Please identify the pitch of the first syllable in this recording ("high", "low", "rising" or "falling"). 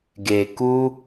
low